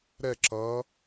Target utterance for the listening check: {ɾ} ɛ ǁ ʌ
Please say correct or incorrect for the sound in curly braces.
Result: correct